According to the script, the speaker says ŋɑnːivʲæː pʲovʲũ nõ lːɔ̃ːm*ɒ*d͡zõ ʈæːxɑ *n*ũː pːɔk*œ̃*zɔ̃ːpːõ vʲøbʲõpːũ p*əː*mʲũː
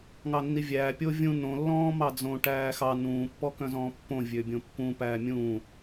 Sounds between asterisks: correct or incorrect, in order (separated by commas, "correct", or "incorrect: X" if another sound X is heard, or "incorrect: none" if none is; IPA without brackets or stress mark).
incorrect: ɑ, correct, correct, incorrect: æː